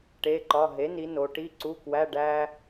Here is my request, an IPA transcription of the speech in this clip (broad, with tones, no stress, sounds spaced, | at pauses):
ʈ e˧˥˧ ǃ ɒ˧˥˧ ɦ e˩˥ n i˩˧ n o˩˧ ʈ i˧˥˧ ǀ u˧˥˧ k w æ˧˥˧ ɖ æ˥